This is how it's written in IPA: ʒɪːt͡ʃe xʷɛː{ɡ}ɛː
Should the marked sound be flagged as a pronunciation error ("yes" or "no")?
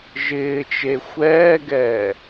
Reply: no